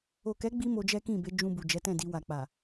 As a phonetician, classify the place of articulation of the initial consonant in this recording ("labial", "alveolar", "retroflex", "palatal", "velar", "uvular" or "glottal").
velar